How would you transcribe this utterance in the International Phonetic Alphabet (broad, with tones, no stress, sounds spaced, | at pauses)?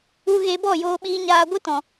u˧ ɣ e˧ b ɔ˦˨ j oː˧ ɓ iː˧ ɲ aː˧ ɡʷ ɨ˦ t ɔ̃˨